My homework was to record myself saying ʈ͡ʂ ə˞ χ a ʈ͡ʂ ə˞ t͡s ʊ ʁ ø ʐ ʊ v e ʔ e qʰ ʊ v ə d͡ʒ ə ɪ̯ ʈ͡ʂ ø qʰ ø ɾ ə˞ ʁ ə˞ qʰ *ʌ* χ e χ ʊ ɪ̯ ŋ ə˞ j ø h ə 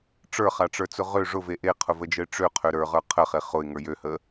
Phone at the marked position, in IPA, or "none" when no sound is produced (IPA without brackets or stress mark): ə